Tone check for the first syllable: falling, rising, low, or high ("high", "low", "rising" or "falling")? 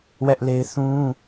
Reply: high